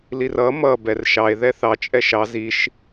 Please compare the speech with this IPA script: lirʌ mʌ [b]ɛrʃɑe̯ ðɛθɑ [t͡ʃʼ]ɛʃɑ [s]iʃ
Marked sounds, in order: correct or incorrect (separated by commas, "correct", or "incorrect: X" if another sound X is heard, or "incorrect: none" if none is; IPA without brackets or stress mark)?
correct, correct, incorrect: z